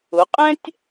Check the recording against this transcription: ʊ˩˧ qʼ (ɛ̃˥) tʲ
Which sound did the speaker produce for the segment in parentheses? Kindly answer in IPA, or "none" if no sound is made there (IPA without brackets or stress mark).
ɛ̃˥